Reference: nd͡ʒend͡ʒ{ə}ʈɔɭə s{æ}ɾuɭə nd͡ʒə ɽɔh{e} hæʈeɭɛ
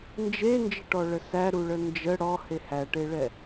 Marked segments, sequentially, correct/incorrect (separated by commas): correct, correct, correct